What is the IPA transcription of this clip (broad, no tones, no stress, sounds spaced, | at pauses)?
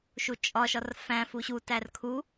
ʃ u t͡ʃʼ ɒ ʃ ɒ r f æ̃ f u ɕ u t æ r kʰ u